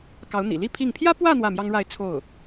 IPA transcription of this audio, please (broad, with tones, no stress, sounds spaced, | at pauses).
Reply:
k ɑ˧˥ ʊ̯ n̪ ḭ˨˩ l i˥ pʰ i˥˩ ŋ pʰ j ä˥ p w ä˥˧ n̪ w ä˥˩ m j ɑ˥ ŋ ɻ a˥˧ ɪ̯ t͡sʰ o˥˩ ʊ̯